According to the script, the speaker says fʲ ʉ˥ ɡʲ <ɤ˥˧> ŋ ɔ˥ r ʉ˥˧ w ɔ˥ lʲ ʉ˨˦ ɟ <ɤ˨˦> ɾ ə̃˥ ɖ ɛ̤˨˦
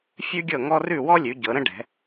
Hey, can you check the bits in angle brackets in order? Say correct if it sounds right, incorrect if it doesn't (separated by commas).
correct, correct